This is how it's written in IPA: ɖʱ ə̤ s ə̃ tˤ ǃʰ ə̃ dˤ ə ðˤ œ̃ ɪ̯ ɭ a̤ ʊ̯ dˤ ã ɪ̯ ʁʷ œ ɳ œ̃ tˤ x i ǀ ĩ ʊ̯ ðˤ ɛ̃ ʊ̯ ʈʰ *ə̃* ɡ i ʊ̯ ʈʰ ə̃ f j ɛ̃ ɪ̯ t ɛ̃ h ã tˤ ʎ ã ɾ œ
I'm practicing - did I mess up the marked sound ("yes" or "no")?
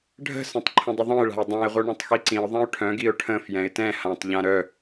yes